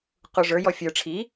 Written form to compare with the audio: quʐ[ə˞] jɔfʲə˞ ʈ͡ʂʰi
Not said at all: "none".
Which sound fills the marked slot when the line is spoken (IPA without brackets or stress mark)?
ə˞